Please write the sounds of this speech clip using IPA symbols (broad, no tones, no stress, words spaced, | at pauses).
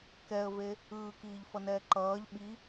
kɛə̯ve | ɯːkiːʎfʌnɛː ǃʌːʎ ɓi